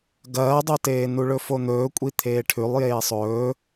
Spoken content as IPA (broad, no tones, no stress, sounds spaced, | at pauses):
ɡ ɐː dˤ o t eː n u ɭ ɵ f o n̪ ɵː kʷʼ i t̪ʰ eː ʈʰ ʉ lˠ j eː sˤ ɵː